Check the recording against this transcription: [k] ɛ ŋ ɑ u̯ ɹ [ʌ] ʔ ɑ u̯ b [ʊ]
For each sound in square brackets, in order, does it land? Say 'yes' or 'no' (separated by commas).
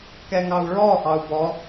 yes, no, no